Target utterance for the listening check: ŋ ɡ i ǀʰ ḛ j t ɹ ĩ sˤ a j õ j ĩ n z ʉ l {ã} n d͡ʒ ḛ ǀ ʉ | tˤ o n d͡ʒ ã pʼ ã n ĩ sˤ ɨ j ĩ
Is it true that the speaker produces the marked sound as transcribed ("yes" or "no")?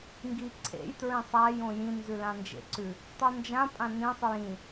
yes